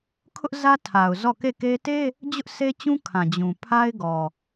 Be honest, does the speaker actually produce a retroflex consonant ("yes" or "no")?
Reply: no